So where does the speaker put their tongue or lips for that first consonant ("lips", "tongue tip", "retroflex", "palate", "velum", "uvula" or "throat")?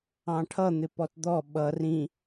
retroflex